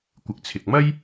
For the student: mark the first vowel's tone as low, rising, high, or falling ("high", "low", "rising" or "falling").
low